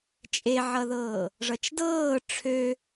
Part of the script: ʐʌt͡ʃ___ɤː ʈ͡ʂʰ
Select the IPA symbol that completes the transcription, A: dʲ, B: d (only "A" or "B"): B